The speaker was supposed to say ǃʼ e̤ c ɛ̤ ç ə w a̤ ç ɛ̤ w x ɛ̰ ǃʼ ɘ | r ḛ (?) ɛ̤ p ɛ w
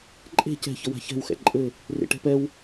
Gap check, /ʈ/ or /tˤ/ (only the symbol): ʈ